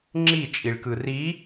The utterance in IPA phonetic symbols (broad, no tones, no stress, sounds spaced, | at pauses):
ŋ͡ǁ i t͡ʃʼ i ɭ k ɯ r i